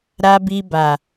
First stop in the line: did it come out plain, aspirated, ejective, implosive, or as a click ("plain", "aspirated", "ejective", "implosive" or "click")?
plain